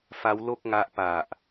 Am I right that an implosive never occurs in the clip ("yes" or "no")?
yes